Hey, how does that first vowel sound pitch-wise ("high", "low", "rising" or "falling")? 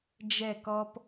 falling